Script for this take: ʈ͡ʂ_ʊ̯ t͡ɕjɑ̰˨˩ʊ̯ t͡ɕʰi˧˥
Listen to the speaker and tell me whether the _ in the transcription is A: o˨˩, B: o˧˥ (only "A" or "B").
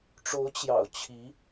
B